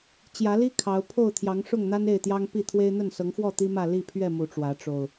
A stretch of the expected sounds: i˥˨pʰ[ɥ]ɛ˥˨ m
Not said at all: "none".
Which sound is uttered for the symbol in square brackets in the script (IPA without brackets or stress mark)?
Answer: ɥ